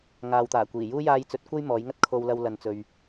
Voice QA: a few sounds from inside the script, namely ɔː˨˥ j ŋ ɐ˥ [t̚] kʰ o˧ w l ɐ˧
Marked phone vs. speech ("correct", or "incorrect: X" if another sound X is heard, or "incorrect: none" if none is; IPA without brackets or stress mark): correct